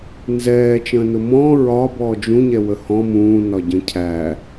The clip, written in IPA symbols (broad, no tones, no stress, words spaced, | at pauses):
nzɛː t͡ʃə̃ːnʊmɔ̃ː ɹɒ bɔːd͡ʒũɲɛ wəhɔ̃ mũːnɒ ɟə̃cʰæ